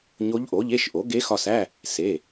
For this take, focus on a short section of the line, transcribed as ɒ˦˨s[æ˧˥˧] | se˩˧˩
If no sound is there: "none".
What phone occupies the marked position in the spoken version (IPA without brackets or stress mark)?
æ˧˥˧